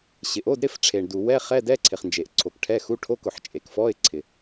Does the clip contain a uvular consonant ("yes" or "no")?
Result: yes